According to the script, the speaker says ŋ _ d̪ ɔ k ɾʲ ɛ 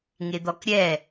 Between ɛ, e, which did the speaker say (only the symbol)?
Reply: e